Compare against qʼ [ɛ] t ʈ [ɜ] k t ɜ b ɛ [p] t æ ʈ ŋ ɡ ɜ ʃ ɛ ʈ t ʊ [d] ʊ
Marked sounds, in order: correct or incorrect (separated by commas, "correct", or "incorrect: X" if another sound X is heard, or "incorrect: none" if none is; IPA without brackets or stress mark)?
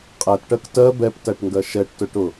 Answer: incorrect: æ, correct, correct, incorrect: ʈ